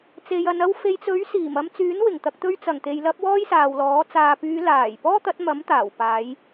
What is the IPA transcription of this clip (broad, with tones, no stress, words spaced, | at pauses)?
t͡se˨jɐ˨n ɐ˧wfe˨jt͡sɵ˨˥ɥ siː˨˩mɐ˧mt͡syː˨˥nwɪ˨˩ŋ t̪ɐ˨k̚t̪ɵ˧ɥ t͡sɐ˨˩ŋt̪e˨jlɐ˧p̚ wɔː˥jsaː˨wlɔː˨˥ t͡saː˨pyː˨˧laː˨˩j pɔː˥ t̪ɐ˨˥t̚mɐ˨˥m t̪aː˨˩w paː˨˧j